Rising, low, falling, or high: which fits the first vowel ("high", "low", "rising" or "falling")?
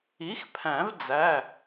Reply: rising